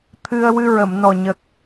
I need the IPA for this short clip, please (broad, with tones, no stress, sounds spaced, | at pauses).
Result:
t̪ʰ ɨ˧ ə̯ w ɨ˧ ɹ ə˨˩˨ m n ɔ˨˩ ɲ ə˨˩ k̚